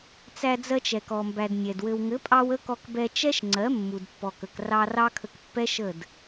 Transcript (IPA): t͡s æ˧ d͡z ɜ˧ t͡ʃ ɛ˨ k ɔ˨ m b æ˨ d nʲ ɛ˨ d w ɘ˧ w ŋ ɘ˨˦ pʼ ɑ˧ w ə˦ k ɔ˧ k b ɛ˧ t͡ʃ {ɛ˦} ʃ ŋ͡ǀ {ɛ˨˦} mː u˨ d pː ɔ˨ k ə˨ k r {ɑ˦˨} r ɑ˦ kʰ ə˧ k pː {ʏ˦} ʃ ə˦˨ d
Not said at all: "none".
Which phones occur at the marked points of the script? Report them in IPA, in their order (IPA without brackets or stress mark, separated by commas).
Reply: ɛ˦, ɜ˨˦, ɑ˧, ɛ˦